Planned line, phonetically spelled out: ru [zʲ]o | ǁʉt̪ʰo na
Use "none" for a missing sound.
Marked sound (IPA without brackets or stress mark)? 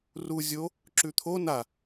zʲ